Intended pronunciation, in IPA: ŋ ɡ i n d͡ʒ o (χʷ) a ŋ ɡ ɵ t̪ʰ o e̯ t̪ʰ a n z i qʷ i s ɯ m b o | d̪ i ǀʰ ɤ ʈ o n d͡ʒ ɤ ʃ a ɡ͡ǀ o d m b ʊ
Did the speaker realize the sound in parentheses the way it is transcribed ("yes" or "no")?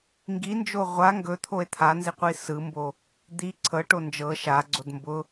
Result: no